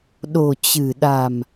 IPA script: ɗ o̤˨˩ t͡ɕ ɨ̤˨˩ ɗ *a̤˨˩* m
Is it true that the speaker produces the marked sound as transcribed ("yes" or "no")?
yes